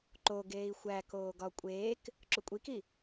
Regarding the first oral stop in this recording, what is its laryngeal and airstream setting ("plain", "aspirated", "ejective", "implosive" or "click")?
click